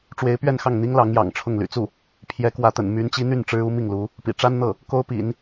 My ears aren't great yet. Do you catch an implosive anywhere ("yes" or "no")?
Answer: no